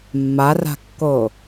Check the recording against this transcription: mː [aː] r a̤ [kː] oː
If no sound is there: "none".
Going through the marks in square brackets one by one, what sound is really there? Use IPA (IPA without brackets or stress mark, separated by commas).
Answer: a, kː